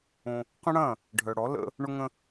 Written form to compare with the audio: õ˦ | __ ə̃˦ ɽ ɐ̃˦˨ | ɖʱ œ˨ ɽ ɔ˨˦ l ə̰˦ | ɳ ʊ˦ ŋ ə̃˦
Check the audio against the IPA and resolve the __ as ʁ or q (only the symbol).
q